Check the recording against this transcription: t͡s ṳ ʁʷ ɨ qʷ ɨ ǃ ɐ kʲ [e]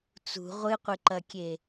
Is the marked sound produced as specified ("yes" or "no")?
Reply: yes